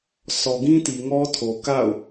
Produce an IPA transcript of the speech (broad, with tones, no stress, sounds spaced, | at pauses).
s ɔ˨ ɡ ĩ˦ t i˨ ŋ ɔ˦ tʰ o˨ k a̰˦˨ ʊ̯